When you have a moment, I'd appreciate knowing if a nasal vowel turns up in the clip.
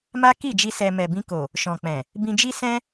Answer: yes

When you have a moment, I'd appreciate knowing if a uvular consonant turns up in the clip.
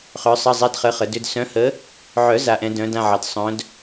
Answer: yes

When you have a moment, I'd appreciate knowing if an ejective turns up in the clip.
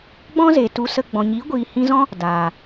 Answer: no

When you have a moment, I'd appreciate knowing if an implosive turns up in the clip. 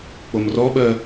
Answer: yes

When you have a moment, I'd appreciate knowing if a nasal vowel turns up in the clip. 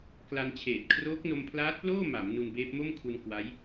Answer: no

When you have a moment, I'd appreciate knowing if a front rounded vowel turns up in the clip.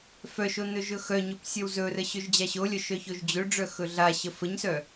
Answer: yes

